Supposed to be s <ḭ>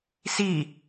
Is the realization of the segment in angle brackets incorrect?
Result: yes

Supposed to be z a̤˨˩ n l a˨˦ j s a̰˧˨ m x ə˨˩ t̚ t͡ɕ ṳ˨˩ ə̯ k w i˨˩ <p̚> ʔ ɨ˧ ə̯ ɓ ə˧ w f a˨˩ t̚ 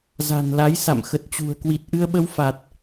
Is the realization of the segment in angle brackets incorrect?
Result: yes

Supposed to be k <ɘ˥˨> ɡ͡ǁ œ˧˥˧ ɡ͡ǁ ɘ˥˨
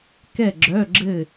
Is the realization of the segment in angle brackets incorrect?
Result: yes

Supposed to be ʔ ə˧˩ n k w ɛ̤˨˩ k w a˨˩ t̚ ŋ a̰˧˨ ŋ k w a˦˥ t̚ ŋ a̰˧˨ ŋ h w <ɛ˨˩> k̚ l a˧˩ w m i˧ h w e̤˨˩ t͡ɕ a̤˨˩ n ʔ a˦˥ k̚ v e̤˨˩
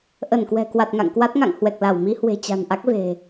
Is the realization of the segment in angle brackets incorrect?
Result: no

